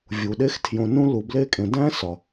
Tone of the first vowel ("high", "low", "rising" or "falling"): low